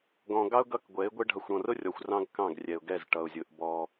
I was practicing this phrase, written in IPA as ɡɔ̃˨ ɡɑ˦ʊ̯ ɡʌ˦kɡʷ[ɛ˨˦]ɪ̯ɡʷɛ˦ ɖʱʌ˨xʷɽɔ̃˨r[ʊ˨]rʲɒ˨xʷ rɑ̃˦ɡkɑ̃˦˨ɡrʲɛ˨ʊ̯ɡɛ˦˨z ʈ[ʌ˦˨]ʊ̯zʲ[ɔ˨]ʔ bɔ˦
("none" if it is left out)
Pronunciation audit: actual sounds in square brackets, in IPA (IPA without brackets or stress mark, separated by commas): ɛ˨˦, ʊ˦, ʌ˨, ʊ˨